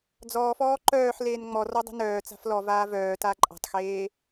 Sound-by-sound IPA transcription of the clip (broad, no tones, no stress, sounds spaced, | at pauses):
d͡z ɔː f ɔː ǃ œː ħ l eː n ŋ͡m ɔ r ɔ dˤ i̤ n œː t͡s a̤ f l ɔ v aː v œː t aː ǃʼ a̤ tˤ x eː